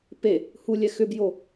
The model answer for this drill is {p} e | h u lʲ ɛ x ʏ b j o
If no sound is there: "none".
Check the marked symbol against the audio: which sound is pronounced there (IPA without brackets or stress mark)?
p